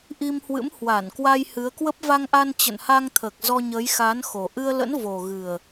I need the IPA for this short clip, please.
ʔ i˧ m h w ɨ̰˧˥ m h w a˧˩ n k w a˧ j h ɨ˨˦ ə̯ k w ə˦˥ p̚ v a˧ ŋ ʔ a˧ n t͡ɕ ə̰˧˨ n h a˧ ŋ t̪ʰ əː˨˩ k̚ z ɔ˧ ɲ əː˨˦ j x aː˨˦ n x o˨˩ ʔ ɨ˧ ə̯ l ə̰˧˥ n v o˨˩ ɣ ɨ˨˩ ə̯

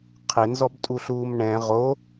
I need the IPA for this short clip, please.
qʰ ɪ n z ɔ b tʼ u ɬ uː m ɳ ɛ̃ ʁ o

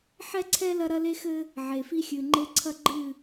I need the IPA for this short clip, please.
ħ ɛ˦ ǀʰ ɛ˦ l ɐ˦ ɾ ɐ˦ l e˦ x ɘ˦ | ʕ e˨ f i˦ xʲ ɨ˨ ŋ͡ǃ e˦ ǀʰ ɐ˦ ɡ͡ǃ ɨ˦˨

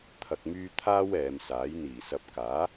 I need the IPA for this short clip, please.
t̪ʰ ɐ˨ k̚ m yː˧ t̪ʰ aː˥ w ɛː˨˧ m s aː˨˥ j n̪ iː˨˩ s ɐ˨˥ p̚ k aː˨˥

